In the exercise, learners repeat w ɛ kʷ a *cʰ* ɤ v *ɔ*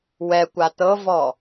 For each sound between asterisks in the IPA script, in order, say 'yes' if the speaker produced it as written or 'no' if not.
no, yes

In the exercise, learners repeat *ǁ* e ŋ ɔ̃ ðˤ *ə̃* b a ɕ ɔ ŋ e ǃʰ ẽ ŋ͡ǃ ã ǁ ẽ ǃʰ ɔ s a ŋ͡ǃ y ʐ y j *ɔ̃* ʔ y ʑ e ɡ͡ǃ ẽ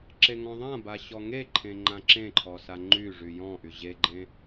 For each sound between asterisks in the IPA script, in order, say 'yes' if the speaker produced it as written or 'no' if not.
yes, no, yes

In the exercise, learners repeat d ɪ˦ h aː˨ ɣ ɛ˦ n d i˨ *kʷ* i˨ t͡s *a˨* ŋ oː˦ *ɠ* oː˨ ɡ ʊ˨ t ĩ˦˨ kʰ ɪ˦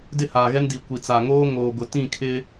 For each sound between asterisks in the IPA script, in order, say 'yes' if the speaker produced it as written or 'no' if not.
yes, yes, no

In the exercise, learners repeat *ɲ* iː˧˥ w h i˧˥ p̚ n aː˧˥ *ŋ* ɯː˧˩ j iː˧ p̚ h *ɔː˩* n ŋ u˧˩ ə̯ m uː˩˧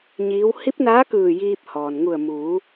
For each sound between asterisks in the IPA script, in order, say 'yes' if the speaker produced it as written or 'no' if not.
yes, no, yes

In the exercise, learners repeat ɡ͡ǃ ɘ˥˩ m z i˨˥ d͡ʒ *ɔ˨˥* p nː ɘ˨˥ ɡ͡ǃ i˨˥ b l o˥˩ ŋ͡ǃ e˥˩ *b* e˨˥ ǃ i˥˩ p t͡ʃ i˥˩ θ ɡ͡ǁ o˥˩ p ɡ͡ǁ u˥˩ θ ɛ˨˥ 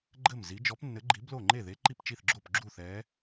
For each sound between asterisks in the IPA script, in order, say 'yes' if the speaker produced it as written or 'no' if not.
yes, no

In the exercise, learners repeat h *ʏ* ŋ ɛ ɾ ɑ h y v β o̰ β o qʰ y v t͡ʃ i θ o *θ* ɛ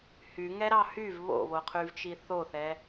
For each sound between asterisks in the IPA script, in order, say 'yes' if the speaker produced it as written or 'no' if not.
no, yes

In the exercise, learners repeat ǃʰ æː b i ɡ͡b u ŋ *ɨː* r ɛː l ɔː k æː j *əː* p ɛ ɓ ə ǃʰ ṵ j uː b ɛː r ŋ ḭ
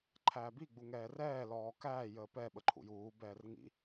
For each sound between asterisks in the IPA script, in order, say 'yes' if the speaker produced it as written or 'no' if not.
no, yes

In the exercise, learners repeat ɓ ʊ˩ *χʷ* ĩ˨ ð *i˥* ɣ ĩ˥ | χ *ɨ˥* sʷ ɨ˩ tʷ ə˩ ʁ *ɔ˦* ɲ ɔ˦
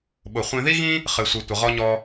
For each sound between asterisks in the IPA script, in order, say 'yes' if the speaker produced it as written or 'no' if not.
yes, yes, no, yes

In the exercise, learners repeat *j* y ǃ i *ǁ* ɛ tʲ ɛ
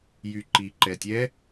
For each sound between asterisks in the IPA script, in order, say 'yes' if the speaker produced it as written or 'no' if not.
yes, no

